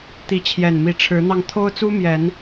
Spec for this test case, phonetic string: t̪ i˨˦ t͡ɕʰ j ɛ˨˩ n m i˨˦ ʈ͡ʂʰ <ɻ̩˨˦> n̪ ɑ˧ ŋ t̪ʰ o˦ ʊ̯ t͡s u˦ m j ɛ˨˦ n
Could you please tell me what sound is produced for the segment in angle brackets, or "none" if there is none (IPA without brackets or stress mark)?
ɻ̩˨˦